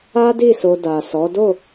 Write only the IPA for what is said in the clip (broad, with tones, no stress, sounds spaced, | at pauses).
a˦ d i˦˨ s o˧ d a˨ s ɔ˨˦ d o˦˨